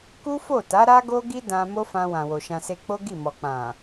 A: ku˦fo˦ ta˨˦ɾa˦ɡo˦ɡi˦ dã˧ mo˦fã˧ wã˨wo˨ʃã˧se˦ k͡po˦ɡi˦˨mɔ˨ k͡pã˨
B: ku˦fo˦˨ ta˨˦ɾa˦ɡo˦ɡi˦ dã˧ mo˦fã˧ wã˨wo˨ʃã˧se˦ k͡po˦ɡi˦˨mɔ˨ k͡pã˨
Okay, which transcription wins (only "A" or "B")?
B